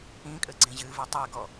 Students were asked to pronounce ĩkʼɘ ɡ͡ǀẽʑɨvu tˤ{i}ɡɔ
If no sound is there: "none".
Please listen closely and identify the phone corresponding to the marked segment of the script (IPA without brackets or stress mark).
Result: e